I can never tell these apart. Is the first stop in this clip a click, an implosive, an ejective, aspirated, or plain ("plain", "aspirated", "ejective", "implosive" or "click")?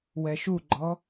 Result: click